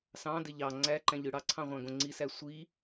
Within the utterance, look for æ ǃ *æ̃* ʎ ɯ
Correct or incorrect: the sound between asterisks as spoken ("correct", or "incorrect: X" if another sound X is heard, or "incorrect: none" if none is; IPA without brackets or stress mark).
correct